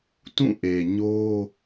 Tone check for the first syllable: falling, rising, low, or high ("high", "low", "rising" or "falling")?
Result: falling